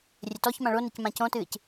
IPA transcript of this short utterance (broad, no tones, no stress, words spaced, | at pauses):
rʲɘtɔçmã ɭonɛc mãcõtɨːc